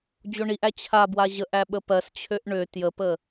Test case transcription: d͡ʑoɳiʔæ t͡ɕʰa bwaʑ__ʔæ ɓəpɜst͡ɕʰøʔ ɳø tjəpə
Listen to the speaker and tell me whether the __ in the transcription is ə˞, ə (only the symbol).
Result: ə